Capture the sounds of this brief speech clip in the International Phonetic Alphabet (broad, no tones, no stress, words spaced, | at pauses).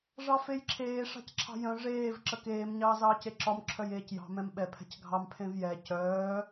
ʐɑfejǁʰeː ʂɑ̤cǁʰɑ̤jœ̃ ʐeːv ǁəkeːm ɲɑːzɑːceǁɒm ǁʰœjeːcjɑ̤ mɛ̃mɓɛ pʰɛ̤cɡʱɑm pʰẽvjɛ cœː